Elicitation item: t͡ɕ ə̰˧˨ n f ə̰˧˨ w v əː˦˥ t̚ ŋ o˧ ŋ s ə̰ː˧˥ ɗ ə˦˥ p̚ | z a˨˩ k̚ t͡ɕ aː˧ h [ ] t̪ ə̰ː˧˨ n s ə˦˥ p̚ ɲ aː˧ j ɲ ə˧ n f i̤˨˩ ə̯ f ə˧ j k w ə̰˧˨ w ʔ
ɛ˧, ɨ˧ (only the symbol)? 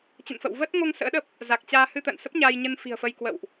ɨ˧